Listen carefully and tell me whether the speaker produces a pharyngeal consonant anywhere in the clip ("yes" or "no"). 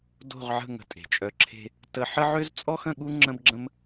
yes